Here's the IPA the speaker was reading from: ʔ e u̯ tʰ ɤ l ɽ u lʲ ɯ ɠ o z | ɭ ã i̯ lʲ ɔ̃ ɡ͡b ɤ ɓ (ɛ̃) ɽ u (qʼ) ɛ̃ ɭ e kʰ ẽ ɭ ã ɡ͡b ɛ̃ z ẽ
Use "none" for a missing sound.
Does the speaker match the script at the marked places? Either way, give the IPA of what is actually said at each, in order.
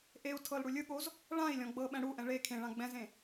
ɛ̃, ʔ

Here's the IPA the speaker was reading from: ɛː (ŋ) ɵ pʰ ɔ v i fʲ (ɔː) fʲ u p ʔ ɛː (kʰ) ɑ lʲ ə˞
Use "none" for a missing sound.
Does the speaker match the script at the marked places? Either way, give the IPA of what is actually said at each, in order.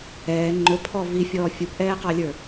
ŋ͡ǃ, ɔː, q

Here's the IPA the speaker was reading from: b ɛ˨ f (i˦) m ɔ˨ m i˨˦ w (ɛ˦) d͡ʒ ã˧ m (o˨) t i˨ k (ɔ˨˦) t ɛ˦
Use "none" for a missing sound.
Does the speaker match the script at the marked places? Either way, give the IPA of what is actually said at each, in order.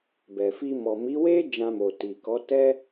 i˧, e˦, o˨, ɔ˨˦

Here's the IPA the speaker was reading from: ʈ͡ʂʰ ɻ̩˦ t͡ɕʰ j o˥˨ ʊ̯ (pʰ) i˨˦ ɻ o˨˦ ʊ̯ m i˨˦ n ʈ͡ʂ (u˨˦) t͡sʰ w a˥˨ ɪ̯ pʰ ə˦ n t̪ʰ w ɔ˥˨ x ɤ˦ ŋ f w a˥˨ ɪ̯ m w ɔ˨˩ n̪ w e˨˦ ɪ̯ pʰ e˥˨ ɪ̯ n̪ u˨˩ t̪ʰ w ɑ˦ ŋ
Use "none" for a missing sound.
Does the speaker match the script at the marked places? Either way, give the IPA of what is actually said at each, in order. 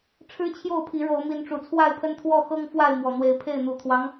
pʰ, u˨˩

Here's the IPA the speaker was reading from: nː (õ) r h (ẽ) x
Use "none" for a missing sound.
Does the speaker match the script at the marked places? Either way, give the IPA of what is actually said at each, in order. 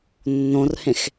õ, ẽ

